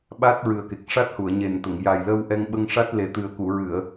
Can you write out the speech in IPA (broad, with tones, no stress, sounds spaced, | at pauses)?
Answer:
ɓ a˦˥ t̚ ɹ ɨ˨˩ ə̯ k e˨˩ k̚ ʂ a˦˥ t̚ h u˨˩˨ ə̯ ɲ e˨˩ n t̪ ə˨˩˨ ŋ j a˨˩ j l ə˧ w ʔ ɛ˧ ŋ ɓ ə˧ ŋ ʂ a˦˥ t̚ l e˨˩˦ t̪ ɨ˨˩ ə̯ k u˨˩˨ ɹ ɨ˨˩˨ ə̯